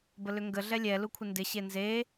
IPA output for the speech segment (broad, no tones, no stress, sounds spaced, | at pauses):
b ə l ʏ ŋ ɡ ə ɮ ɛ lʲ ɛ l u kʷʰ ɪ n d ɪ ɕ e n z e